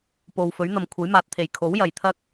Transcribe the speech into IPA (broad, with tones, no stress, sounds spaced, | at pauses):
p o˨ w f ɵ˨˥ ɥ n̪ ɐ˨ m kʷʰ ɐ˨˥ j m aː˨ t̚ t̪ʰ e˨˩ j kʰ o˨˥ w j ɐ˨˩ j t̪ʰ ɐ˥ k̚